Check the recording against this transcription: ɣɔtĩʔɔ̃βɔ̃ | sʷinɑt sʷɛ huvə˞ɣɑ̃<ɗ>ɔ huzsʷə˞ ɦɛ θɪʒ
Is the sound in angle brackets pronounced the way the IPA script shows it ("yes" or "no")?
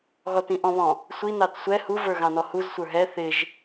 no